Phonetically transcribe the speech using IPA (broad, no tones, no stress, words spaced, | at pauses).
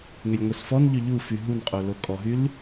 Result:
ŋɛlʲŋʷɛsfɔnʎø ʎufy ɦunqʼo lokʼɔɦyl